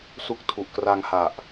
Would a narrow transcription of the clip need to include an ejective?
no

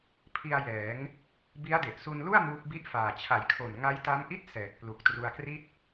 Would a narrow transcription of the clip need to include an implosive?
no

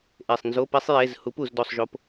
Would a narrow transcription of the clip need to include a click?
no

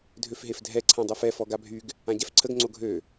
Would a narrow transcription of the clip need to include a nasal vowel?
yes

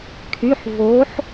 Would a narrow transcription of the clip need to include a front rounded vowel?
yes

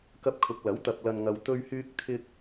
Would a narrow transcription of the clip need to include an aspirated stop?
yes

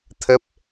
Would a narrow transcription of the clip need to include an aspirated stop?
yes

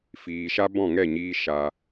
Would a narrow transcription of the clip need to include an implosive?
no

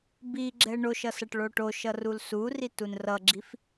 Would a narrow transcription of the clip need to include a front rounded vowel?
no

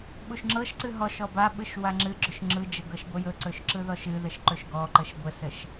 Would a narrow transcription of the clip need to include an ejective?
no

